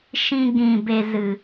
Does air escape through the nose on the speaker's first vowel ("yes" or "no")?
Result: yes